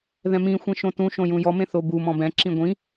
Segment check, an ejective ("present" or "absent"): absent